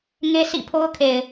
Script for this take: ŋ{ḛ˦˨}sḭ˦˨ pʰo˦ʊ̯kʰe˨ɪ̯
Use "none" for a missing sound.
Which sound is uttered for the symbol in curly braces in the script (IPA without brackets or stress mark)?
e˦